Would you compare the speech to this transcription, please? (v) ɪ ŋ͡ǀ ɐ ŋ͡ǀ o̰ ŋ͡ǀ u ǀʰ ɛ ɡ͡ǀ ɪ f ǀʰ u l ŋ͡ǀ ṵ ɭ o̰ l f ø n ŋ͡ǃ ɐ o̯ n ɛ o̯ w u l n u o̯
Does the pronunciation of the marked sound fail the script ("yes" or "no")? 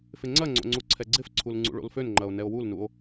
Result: yes